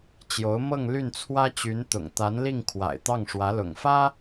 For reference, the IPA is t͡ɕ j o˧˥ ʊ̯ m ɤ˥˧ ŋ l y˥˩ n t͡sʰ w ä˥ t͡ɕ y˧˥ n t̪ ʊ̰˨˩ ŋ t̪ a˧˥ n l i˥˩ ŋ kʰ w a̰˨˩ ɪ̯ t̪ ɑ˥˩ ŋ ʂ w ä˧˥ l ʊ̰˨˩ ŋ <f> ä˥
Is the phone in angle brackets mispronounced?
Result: no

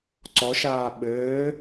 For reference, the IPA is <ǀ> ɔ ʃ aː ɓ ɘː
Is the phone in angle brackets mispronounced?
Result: no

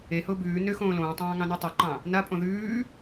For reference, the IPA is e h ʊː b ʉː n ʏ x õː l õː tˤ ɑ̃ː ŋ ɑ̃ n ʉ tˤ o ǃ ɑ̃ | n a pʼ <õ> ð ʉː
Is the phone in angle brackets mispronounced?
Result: no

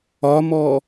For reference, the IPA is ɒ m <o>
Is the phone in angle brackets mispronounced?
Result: yes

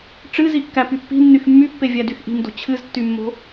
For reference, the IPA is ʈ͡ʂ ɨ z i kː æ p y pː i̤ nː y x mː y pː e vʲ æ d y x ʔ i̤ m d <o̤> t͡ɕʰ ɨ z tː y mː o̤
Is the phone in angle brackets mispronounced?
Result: no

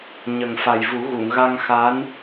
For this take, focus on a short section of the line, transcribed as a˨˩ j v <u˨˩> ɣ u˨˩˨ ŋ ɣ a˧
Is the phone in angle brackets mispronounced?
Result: yes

